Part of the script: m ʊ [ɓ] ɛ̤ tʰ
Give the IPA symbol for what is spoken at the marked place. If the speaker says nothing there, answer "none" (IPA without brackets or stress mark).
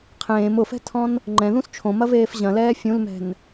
f